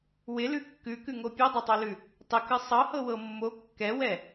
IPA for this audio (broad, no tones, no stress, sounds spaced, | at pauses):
w ɪ l ʉ kː ʉ k ʉ ŋ o pʲ ɤ dˤ ɛ tˤ o l ʉ | tˤ ɪ k ɨ sˤ ɤ h ɤ w ɤ mː o kː ɛ w ɛ